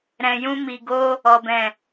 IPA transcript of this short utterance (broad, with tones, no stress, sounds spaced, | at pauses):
ɾ ɛ̃˨ j ũ˧ m i˨ ɡ o˧ | ɔ˨ b ɛ̃˨